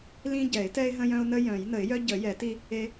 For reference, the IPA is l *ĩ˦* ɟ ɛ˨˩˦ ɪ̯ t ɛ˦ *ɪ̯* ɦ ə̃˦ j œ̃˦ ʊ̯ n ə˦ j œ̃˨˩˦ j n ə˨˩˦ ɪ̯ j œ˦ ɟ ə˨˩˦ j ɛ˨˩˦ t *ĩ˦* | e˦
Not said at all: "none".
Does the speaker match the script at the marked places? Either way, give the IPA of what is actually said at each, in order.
ĩ˦, ɪ̯, i˦

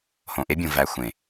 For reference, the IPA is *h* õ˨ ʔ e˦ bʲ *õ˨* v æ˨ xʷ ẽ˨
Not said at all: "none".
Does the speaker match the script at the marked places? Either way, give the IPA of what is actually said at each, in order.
h, õ˨

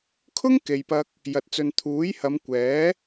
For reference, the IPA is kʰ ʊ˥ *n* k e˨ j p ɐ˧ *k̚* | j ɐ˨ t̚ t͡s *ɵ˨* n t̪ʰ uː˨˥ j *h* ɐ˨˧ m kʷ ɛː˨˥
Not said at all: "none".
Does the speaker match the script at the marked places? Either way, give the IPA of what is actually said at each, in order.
ŋ, k̚, ɵ˨, h

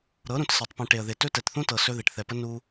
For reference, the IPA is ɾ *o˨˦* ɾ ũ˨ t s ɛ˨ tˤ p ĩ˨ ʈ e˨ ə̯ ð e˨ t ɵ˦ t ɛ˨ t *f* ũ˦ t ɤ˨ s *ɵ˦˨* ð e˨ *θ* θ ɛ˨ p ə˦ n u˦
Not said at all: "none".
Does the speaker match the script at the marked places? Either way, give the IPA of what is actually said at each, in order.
ɤ˨˦, θ, ɵ˦, ʈ

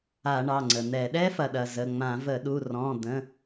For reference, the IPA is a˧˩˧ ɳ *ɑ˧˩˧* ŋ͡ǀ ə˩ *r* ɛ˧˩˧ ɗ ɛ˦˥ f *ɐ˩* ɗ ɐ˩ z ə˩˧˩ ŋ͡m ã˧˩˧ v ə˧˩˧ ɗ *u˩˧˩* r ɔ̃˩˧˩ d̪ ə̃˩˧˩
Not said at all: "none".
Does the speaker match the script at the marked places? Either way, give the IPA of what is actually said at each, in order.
ɑ˩˧˩, n̪, ɐ˩, u˩˧˩

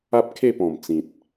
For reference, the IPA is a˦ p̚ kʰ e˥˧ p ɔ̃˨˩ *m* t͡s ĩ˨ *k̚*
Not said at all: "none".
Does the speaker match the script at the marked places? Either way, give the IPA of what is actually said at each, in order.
m, t̚

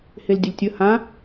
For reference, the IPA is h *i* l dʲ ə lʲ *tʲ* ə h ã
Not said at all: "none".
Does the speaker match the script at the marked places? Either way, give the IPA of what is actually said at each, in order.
e, tʲ

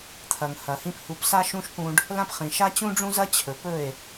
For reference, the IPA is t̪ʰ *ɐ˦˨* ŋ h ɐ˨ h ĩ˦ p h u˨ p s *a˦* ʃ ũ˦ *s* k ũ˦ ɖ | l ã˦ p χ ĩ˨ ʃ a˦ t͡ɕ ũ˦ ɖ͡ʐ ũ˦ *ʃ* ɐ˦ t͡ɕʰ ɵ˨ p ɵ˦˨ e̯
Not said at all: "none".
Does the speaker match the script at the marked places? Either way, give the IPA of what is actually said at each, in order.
ɐ˨, a˦, ʃ, z

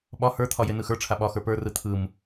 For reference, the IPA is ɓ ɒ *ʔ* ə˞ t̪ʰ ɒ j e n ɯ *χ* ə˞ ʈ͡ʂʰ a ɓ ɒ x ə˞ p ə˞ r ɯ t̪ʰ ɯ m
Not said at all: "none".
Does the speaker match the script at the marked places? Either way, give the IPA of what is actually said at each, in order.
h, x

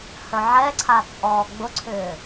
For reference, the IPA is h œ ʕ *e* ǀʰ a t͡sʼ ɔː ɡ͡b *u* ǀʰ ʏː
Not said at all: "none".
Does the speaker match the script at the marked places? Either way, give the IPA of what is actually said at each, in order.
ɛ, ʊ

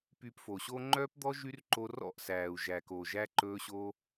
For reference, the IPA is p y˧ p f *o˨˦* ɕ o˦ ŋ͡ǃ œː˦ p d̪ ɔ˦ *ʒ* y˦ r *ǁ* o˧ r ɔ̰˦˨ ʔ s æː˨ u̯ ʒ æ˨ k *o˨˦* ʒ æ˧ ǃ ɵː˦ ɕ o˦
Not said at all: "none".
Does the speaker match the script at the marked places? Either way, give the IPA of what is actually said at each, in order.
o˨, ʒ, ǃ, o˨

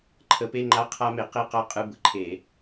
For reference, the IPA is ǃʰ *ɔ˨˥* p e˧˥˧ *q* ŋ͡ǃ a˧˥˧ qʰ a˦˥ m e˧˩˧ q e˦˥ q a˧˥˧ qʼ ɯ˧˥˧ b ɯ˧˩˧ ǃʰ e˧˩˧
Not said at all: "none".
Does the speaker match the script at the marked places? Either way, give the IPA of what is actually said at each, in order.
ə˨˥, none

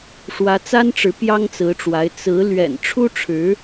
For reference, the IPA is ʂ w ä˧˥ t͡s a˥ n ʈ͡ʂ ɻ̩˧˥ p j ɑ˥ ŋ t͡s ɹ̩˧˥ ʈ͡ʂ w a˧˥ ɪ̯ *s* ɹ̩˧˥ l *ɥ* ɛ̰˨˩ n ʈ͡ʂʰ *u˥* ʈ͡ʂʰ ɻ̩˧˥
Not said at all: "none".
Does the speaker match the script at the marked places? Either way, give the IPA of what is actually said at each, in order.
t͡s, ɥ, u˥

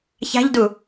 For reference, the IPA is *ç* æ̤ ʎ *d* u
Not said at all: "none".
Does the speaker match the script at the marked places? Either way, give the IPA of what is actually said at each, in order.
ç, d

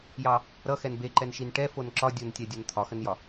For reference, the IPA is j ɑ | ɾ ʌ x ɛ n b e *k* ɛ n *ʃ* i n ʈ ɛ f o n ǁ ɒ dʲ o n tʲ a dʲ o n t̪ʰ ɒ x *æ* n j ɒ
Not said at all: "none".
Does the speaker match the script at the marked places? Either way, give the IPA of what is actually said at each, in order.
ǃ, ʃ, ə

